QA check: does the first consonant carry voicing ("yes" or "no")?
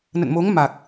yes